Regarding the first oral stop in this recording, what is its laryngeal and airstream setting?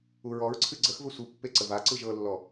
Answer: click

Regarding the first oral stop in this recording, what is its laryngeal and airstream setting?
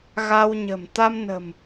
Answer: plain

